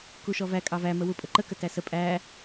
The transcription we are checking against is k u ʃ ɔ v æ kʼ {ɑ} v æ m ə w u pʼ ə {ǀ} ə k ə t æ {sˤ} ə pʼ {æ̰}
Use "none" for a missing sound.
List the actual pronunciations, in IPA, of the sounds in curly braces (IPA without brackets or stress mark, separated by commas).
ɑ, ǃ, s, æ